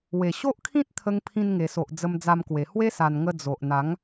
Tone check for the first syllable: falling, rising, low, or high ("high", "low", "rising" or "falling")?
low